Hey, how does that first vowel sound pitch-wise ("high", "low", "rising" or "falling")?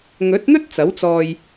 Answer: rising